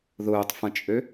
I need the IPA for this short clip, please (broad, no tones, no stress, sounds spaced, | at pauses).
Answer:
ð ʊː tˤ f ɐ̃ t͡ʃʼ ø